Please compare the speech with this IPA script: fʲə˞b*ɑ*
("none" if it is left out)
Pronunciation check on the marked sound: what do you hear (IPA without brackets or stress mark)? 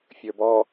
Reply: ɔ